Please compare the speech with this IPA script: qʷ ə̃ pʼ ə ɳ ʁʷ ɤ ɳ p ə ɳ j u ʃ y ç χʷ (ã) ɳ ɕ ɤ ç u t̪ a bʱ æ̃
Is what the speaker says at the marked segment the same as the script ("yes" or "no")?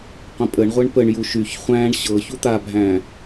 no